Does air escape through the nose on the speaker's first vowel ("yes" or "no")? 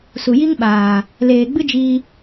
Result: no